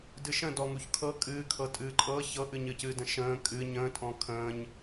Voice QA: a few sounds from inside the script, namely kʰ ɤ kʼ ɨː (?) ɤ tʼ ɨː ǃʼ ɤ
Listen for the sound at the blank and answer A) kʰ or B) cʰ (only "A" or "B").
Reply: A